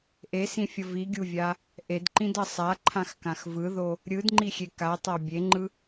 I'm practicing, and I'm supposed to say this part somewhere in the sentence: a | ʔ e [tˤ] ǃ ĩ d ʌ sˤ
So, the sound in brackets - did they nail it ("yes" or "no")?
no